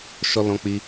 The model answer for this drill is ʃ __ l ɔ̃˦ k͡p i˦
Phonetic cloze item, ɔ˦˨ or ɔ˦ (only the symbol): ɔ˦